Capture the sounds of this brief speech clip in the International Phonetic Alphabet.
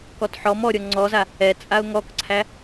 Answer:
kɔtħɔm ɔɾʲɔ ŋ͡ǀɔza | ɛ t͡sʼaʊ̯ŋɔkǀʰæ

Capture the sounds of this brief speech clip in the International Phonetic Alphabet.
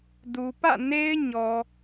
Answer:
du˨pä̰˦˨ne˦ɪ̯ ɲɔ˨

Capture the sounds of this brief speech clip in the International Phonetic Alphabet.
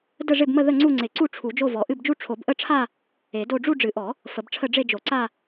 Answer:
də˥˧ʐɪ˥˧bmə˥˧ ðə˥˧ŋ͡ǀu˥˧ŋ͡ǀɪ˨˩˦ǀu˥˧ ʈ͡ʂʰu˨˩˦d͡ʒo˥˧vɔ˨˩˦ ʔɨ˥˧bd͡ʒu˥˧ ʈ͡ʂʰo˨˩˦bʔə˥˧ʈ͡ʂʰa˥˧ | e˨˩˦do˥˧ ɖ͡ʐu˥˧ɖ͡ʐɨ˨˩˦ʔɔ˨˩˦ | fə˨˩˦bʈ͡ʂʰə˥˧ ɖ͡ʐe˥˧d͡ʒo˨˩˦ǀa˥˧

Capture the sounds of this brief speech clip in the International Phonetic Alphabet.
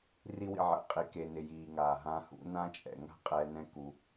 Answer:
ri˦wḭ˧ʕɛ̰˨˦qʼi˨ ke˨nɪ˨ jiː˨ŋaː˨ɦã˧hṵ˨˦ nã˦t͡ʃʼɛ̰˨ ŋa̤˦qʼɛ˧ nɛ̃˦ku˧

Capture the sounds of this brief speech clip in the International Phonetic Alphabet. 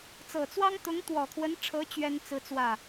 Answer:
t͡sɤ˨˩t͡swɑ˥ŋ t̪ʊ˧˥ŋt̪wɔ˨˩kʰwə˧˥nʈ͡ʂʰɤ˧˥ t͡ɕɥɛ˥n t͡sɹ̩˥t͡swä˥˩

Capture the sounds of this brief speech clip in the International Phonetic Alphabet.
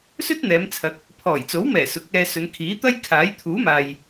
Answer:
sɵ˥t̚n̪ɛː˨˧mt͡sʰɐ˨˥k̚ | pʰɔː˨˩jt͡so˨˥wmɛː˨˩ sʊ˨˥k̚ɛː˧sɵ˨˧n kʰiː˨˥t̪ɐ˥jkʰaː˨˥j t̪ʰuː˨˥maː˨j

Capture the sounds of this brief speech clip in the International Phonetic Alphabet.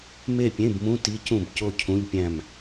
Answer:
me˥˨pʲẽ˧˥˧bmũ˧˥˧ ti˧˥˧cũ˥˨b co˥˨cʰũ˧˥˧ʎpʲæ̃˥˨m

